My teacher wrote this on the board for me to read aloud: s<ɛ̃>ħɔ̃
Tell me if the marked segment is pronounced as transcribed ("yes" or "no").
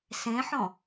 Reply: no